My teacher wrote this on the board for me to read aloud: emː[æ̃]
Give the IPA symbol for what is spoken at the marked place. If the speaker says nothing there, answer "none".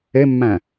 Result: æ̃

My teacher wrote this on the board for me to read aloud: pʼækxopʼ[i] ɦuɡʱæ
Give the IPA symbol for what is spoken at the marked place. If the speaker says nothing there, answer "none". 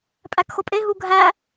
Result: e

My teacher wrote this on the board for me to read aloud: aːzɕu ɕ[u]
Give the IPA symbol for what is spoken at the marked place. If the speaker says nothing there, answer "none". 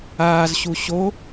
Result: o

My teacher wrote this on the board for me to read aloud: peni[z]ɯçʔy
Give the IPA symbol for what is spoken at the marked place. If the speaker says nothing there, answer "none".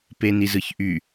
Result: z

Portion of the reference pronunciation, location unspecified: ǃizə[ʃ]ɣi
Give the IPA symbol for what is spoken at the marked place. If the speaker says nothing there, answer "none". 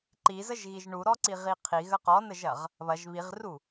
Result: ʒ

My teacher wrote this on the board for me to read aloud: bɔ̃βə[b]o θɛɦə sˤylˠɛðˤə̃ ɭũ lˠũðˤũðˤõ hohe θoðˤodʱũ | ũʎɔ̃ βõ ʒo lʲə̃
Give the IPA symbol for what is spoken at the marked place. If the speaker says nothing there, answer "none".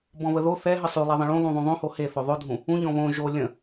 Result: ð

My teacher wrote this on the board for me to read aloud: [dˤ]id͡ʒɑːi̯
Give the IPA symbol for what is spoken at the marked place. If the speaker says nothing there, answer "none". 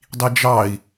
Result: dˤ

